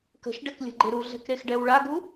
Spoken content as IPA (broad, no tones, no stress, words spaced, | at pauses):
kə̤ʃɖɛklʲə̤ɡ͡ǃe ɾuɮɛ̤kɾexɖɛw ɭaɡu